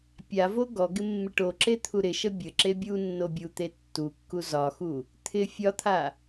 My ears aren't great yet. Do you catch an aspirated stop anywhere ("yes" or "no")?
yes